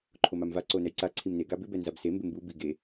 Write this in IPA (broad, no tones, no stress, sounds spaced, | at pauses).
ǃʰ o m a m v a ǀ o n ɛ j ǀ a ǀʰ i m n e ɡ a b ɪ b ɛ n z a b s e m b ɪ m b u b i ɡ e